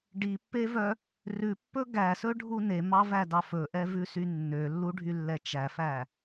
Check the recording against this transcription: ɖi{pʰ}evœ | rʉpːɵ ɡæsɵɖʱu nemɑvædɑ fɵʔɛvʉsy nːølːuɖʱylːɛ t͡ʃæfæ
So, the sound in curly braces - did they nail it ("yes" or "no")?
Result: no